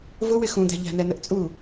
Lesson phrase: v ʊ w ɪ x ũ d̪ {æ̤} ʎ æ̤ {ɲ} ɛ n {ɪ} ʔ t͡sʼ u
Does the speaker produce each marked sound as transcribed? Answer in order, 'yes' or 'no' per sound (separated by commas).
yes, no, no